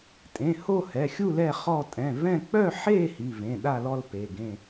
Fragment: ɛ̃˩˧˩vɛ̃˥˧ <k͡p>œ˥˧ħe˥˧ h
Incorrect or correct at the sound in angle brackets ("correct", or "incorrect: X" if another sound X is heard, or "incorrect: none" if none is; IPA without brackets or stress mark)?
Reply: correct